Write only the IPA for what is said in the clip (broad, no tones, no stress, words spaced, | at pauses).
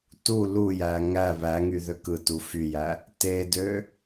tu lujæ ŋæ βæŋy ðøkɯtu fyjæ | tedø